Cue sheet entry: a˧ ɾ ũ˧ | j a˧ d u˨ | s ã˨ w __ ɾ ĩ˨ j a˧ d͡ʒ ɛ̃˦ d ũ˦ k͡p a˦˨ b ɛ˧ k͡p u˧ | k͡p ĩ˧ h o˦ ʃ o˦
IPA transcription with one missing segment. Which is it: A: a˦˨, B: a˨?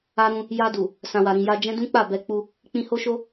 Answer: B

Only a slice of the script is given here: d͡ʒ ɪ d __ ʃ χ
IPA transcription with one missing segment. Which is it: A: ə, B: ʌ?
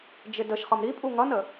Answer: A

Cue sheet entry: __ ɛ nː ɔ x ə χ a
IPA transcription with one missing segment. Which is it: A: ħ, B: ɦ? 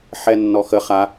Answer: A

